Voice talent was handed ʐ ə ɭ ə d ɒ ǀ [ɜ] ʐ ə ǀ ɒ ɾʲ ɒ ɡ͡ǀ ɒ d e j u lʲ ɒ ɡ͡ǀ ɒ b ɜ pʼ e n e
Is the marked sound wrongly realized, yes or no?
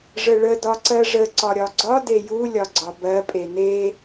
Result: no